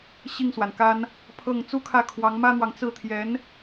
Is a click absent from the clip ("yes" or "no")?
yes